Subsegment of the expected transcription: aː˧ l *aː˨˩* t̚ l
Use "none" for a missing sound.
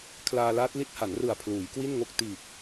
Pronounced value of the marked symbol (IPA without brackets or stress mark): aː˦˥